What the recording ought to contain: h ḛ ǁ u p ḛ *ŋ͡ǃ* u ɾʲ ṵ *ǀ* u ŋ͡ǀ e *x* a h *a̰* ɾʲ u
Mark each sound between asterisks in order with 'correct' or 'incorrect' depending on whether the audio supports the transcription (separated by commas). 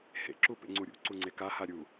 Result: incorrect, correct, incorrect, incorrect